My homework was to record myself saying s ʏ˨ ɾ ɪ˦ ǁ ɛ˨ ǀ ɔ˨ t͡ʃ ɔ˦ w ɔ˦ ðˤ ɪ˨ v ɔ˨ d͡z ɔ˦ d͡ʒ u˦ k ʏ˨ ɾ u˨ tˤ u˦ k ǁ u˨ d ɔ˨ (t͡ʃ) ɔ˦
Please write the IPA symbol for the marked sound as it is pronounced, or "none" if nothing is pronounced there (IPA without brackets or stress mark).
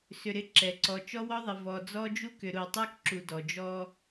d͡ʒ